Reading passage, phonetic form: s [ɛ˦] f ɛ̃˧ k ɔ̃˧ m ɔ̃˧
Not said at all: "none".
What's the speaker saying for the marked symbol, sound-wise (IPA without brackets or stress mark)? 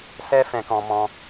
ɛ˦